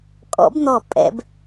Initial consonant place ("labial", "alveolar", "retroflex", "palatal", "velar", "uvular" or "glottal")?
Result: velar